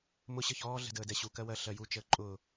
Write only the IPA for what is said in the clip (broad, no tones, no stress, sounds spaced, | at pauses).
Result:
m ʊ ɕ ə ç ɔː ɮ ɛ̤ d əː d ɛ ɕ u k ɜ w ɜ ɬ ɜ j u t͡ʃ əː ǃʼ ʊː